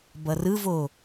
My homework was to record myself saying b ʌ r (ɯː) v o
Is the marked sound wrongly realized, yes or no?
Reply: yes